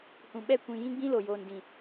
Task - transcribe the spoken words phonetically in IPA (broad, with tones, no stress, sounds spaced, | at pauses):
h ũ˨ ɓ ɛ˦˨ kʷ ĩ˨ j ĩ˦ ɡ͡b ĩ˦ l o˨ j oː˨ n d ĩ˨